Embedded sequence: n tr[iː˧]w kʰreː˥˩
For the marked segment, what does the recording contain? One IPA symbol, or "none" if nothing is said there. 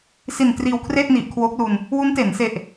iː˧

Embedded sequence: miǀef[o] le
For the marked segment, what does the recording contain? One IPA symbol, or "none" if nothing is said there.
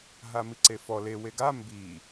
ɔ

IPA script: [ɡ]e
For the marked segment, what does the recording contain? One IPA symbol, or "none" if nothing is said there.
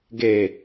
ɡ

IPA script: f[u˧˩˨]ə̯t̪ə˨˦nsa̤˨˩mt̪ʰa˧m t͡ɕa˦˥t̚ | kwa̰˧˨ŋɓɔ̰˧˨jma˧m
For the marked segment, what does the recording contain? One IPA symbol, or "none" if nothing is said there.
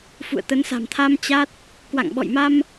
ṵ˧˨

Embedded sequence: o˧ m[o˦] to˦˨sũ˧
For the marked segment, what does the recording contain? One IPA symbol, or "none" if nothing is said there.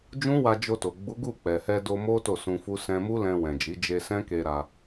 o˦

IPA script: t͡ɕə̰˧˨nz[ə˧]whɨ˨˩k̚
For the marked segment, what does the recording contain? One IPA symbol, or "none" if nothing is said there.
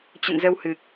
ə˧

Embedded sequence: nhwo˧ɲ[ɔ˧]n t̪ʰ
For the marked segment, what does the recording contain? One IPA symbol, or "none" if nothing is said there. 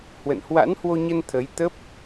ə˧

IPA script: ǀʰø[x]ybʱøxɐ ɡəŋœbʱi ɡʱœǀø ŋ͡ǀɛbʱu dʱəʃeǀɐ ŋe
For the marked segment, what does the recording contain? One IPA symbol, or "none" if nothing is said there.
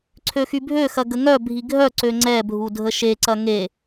x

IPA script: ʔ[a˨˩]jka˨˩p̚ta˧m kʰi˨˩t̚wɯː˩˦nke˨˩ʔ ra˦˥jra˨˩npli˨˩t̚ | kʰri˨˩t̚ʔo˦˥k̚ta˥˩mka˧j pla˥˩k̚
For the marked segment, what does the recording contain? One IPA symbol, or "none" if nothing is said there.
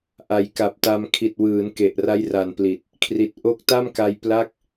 a˨˩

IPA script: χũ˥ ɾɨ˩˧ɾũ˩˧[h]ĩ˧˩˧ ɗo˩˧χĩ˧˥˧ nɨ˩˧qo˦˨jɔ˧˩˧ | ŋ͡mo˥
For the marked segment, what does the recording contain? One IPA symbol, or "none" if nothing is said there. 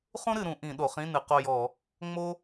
ʔ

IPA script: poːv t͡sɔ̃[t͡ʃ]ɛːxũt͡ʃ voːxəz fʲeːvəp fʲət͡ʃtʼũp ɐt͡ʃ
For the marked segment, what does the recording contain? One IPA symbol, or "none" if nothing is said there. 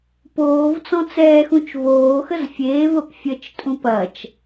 t͡s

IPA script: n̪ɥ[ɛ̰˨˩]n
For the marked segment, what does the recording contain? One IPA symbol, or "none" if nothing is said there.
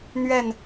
ɛ˥˨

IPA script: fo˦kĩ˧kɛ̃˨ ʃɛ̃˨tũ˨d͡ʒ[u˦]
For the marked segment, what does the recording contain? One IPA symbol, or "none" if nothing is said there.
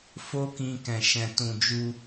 u˧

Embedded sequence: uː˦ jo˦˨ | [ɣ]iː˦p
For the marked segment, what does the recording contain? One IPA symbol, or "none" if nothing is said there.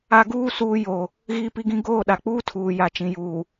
ɣ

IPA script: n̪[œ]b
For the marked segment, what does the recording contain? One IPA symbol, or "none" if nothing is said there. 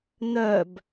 œ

